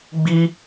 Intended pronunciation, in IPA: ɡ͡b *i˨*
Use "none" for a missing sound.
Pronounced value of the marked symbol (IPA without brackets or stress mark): i˦